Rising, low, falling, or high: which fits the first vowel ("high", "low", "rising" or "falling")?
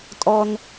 low